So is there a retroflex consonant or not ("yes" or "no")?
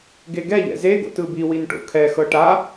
yes